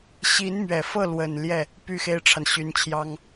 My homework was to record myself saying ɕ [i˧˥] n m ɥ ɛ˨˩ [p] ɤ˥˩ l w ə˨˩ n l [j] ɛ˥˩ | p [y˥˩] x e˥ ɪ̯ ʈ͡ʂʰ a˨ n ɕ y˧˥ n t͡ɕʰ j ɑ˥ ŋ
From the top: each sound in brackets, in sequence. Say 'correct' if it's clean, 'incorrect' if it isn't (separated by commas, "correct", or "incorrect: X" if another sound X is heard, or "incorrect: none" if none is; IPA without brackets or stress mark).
correct, incorrect: f, correct, correct